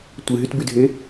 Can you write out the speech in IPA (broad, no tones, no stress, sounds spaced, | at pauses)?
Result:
tʷ ɨ ɦ y t b y dʱ e